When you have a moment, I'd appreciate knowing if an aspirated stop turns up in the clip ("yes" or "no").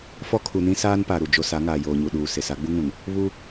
yes